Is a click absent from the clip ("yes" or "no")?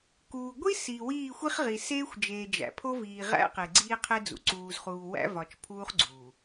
no